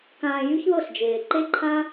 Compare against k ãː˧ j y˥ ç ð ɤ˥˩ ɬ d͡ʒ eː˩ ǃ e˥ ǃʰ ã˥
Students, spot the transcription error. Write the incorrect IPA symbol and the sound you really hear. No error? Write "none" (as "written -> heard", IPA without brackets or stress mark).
none